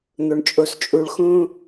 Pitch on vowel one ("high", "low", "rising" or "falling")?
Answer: high